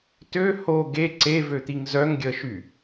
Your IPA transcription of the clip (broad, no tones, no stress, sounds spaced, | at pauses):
t ø h o ɡ e ǀ e v ø t̪ i ŋ z œ ŋ ɡʲ əː ʃ y